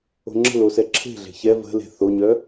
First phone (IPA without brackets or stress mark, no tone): o̤